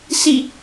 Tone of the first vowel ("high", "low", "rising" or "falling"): falling